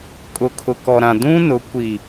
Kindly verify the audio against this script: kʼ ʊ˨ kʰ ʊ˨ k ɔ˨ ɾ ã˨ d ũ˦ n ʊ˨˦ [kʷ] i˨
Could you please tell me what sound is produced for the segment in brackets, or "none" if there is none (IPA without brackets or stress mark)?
kʷ